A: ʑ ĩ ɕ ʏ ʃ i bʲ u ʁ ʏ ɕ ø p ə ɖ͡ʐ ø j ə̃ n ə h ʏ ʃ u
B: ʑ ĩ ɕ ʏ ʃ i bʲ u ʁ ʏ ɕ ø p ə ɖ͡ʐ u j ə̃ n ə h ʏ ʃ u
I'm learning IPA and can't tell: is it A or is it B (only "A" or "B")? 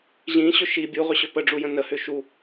B